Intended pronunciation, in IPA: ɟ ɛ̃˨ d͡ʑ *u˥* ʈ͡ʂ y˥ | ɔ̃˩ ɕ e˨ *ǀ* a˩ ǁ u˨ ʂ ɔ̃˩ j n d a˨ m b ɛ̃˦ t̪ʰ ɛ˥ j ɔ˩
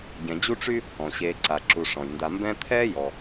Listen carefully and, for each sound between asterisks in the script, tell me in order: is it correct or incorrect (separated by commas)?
correct, correct